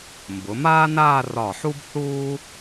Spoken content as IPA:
m b ʊ˩˧ m aː˥ n aː˥˧ r ɒ˧˩ ħ u˥ b θ uː˥

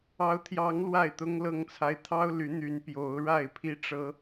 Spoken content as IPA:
ɑ˨˦ ʊ̯ t̪ʰ j ɑ˨˦ ŋ l w a˥˨ ɪ̯ t̪ ʊ˦ ŋ l ɤ˥˨ ŋ t͡sʰ a˦ ɪ̯ t̪ʰ ɑ˦ ʊ̯ l y˨˦ n̪ y˨˦ n p j o˨˦ ʊ̯ ɻ a˥˨ ɪ̯ pʰ i˦ ʈ͡ʂ ɤ˦

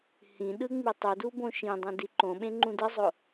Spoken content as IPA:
h ĩ ɗ ɯ ŋ͡m i tˤ u d u b õ ʃ ĩ dˤ ĩ d i ǃ õ ɓ ẽ ŋ͡ǃ ũ d ɯ zˤ o

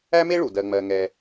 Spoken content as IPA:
æ˥ m e˥ ɭ u˩ d ɜ˨ ŋ͡m ɜ˨ ŋ ɛ˨

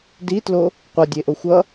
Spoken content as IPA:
d i t l o | qʷ ʌ dʲ e ʔ o xʷ ʌ

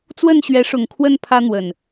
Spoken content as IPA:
t͡s w ə˥˨ n ɕ ɥ ɛ˨˦ ʂ ʊ˨˩ ŋ kʰ w ə˥˨ n pʰ ä˦ n̪ w ə˨˩ n

